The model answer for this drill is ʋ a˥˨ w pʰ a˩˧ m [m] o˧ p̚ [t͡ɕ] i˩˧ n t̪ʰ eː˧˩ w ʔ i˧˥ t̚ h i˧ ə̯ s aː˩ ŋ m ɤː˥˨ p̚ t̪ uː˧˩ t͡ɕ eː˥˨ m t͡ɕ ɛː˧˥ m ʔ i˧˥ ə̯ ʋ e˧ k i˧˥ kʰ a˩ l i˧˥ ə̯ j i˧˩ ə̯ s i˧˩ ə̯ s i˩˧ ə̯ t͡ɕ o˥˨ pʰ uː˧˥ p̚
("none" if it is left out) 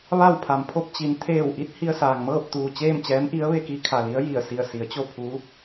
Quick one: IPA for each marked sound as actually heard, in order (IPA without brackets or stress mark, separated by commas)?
pʰ, t͡ɕ